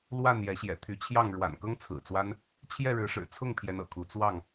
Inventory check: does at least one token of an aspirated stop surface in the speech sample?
yes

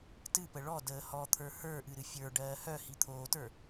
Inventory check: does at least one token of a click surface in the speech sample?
no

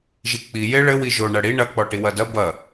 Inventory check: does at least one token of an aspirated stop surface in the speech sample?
no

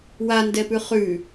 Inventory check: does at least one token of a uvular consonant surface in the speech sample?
yes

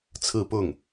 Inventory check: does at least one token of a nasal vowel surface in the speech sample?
no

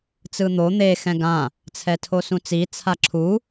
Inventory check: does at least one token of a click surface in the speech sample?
yes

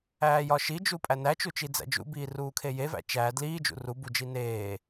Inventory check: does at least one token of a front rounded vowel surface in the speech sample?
no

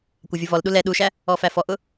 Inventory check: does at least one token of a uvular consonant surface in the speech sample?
no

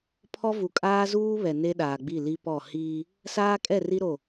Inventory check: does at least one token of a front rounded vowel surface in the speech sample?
no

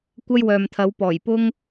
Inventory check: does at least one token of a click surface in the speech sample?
no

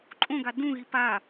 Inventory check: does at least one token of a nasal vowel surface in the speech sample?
yes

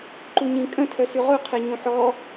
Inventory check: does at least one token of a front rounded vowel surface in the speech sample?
yes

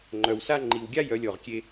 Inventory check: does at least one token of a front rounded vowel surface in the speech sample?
yes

